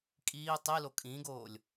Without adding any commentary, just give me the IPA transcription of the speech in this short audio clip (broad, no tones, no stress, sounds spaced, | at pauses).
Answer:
kʼ iː tˤ i l o kʼ ĩː ɡ oː lʲ